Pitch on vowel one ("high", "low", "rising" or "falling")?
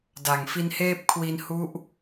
low